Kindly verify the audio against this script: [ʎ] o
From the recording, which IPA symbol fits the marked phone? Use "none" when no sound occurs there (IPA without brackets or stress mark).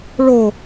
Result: ɭ